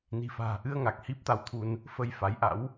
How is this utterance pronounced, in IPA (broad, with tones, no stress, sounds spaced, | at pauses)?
n i̤˨˩ f a̤ː˨˩ ʔ ɨ˧ ə̯ ŋ a˨˩ k̚ h i˦˥ p̚ t̪ a˧ w t̪ʰ u˧ n | f ə˧ j f a˨˦ j ʔ a̰˧˥ w